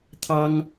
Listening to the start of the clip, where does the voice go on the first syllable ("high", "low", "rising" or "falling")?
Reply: high